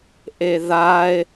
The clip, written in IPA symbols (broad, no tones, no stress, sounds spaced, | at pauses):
ʔ e ð a e̯